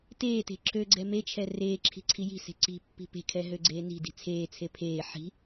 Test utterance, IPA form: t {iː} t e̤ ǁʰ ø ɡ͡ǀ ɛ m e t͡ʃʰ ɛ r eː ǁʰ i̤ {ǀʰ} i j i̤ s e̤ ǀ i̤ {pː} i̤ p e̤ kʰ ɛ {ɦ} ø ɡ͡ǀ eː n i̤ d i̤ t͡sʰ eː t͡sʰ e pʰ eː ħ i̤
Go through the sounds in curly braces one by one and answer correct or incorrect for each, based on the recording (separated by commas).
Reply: incorrect, correct, correct, correct